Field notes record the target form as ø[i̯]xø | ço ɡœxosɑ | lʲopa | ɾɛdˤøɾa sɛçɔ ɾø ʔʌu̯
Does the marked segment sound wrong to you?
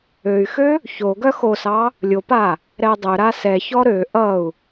yes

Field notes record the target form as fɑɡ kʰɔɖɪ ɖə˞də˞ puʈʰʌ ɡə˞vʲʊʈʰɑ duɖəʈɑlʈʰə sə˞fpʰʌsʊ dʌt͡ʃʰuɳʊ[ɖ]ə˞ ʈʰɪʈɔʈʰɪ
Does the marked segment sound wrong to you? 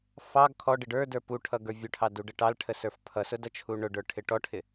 no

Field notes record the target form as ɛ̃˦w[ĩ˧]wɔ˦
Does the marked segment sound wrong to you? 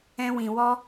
no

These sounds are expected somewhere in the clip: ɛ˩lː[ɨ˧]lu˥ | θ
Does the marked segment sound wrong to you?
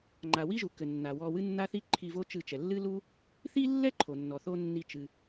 yes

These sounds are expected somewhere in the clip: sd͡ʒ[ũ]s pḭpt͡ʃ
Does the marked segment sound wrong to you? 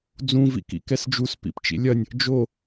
yes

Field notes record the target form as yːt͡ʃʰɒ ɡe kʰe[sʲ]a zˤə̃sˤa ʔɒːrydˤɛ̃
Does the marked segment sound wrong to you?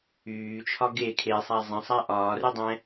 yes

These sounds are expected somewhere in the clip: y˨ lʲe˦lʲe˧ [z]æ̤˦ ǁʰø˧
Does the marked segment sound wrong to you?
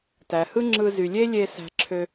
yes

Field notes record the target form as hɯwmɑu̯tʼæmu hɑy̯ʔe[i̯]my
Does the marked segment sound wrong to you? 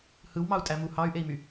no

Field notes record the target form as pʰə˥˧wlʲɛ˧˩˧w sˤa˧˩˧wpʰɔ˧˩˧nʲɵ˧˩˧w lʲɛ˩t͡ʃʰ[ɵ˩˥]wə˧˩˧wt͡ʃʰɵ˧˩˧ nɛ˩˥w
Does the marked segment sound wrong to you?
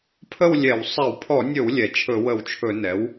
yes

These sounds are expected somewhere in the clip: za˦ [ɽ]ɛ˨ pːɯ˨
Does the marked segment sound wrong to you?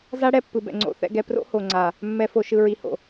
no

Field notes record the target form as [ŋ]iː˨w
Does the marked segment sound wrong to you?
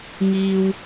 no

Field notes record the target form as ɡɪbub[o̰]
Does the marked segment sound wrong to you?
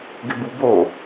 yes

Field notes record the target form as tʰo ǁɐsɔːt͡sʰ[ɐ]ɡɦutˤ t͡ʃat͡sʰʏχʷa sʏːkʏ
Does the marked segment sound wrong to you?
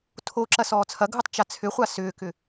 no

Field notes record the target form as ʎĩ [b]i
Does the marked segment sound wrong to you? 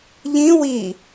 yes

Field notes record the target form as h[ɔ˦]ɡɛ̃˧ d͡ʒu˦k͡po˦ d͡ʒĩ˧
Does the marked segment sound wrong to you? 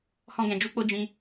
yes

